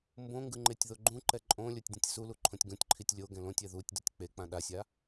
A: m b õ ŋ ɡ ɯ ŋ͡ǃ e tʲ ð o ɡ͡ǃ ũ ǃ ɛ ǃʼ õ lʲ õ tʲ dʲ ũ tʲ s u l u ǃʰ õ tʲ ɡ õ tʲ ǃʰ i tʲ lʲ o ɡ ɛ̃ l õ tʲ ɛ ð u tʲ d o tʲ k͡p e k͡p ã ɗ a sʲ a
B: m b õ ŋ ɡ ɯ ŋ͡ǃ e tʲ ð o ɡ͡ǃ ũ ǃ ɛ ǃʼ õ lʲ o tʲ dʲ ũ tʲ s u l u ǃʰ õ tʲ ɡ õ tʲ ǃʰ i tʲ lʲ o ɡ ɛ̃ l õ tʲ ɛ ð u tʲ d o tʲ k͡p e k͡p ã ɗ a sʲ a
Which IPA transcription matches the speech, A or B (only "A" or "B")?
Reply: B